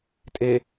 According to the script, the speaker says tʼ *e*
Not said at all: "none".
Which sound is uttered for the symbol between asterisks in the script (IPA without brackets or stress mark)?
e